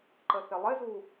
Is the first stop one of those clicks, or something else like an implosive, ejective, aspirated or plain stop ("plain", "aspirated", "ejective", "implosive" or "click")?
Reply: click